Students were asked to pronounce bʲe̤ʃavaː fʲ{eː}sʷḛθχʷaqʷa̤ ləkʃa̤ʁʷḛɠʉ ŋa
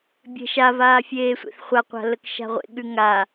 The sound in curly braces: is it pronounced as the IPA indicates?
yes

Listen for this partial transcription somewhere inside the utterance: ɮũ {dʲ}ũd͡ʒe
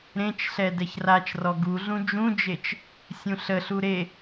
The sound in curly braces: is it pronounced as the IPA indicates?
no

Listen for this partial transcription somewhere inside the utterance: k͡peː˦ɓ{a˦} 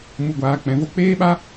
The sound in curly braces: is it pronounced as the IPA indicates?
yes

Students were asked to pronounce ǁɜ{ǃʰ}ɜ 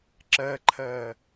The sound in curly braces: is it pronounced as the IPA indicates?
yes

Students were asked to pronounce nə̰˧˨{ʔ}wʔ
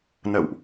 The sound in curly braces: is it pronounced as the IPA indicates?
no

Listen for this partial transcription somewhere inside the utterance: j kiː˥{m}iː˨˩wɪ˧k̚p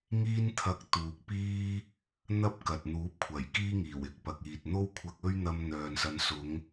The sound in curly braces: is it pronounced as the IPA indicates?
no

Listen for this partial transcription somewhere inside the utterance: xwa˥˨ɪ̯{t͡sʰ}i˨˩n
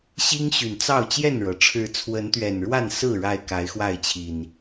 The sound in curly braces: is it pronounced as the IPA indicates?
no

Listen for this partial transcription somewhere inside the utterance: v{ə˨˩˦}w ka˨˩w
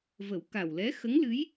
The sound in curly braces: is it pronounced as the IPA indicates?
yes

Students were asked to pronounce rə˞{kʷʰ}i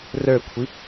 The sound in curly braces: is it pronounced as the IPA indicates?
yes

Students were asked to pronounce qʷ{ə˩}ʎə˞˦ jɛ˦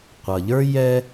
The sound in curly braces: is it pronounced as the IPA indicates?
no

